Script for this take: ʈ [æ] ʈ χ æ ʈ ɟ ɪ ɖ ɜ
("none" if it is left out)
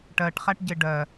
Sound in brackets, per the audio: ɜ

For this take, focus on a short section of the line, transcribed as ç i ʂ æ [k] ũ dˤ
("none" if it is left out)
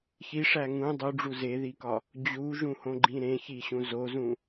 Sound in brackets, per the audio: ŋ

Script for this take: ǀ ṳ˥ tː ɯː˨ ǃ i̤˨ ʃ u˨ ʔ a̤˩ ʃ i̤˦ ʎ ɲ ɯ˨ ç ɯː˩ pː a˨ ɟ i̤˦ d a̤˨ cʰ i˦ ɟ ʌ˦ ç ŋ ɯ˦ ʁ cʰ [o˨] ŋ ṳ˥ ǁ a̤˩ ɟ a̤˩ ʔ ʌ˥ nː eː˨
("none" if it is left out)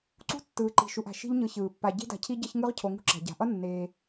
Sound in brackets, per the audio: o˨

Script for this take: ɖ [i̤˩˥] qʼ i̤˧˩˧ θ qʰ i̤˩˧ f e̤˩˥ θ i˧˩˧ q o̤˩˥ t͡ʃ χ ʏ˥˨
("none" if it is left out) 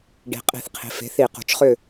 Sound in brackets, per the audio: i̤˩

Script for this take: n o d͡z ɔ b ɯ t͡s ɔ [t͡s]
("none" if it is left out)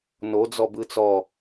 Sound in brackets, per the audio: none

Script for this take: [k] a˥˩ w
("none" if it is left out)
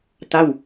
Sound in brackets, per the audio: t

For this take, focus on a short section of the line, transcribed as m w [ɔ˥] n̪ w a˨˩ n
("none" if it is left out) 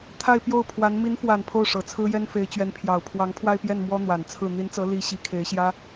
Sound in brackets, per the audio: ɔ˥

